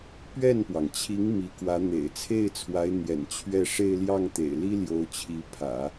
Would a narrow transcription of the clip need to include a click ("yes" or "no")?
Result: no